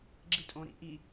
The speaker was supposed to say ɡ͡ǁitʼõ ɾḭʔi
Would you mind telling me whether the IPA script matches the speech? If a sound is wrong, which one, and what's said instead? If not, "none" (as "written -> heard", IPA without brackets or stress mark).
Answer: none